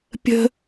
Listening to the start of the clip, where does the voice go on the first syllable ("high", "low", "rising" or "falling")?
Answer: high